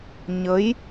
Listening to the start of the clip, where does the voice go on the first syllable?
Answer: rising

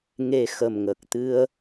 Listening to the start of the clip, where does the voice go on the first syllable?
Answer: low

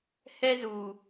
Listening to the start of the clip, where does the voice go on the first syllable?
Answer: high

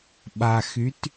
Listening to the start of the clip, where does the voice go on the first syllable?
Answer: low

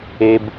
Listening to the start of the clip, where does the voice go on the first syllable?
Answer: high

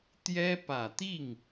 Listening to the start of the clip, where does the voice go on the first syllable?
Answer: high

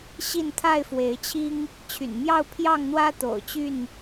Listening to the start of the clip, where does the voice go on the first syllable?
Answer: falling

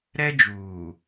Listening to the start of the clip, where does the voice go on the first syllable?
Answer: high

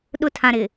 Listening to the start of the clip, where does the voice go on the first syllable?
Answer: high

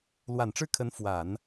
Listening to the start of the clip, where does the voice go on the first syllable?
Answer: low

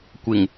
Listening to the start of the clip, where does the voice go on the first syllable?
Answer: low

